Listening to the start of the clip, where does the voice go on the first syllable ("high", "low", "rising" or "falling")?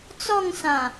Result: falling